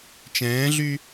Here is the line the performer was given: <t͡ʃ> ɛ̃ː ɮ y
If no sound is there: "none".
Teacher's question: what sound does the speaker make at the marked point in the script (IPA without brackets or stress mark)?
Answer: t͡ʃ